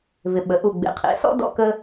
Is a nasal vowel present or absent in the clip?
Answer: absent